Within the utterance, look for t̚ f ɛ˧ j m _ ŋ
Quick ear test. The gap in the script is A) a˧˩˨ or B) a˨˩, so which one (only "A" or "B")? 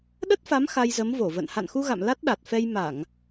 A